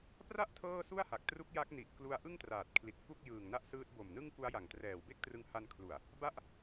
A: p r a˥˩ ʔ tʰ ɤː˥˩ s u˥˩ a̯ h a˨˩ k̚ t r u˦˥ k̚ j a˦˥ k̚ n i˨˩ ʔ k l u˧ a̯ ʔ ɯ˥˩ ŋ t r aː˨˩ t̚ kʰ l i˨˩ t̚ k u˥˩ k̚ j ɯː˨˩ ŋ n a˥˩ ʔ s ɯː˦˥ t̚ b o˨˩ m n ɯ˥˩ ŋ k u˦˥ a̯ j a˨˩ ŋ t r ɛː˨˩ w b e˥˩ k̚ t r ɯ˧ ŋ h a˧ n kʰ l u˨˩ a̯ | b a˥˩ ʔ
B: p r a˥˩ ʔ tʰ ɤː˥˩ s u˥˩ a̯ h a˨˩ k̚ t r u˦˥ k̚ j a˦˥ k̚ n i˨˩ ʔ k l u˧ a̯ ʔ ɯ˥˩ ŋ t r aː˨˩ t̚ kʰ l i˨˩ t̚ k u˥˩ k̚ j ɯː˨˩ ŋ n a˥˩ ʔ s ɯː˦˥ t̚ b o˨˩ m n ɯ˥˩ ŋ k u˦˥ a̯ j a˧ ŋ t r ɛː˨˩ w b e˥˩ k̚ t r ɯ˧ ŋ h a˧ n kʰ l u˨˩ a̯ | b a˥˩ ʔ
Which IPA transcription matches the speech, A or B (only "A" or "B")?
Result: A